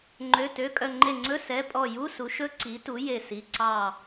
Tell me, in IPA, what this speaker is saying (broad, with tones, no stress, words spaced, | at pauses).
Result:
ŋ͡ǃø˩˧˩ tø˩˧˩kʼœ˧˩ŋ͡ǃe˧˩ŋ͡ǀɵ˧˥˧ sɛ˩˧˩pʼɔ˧˩ ju˧˥˧su˩˥ʃɵ˦˥ ǀi˩˥tu˩˥ je˧˩si˩˧˩ ǀɑ˧˩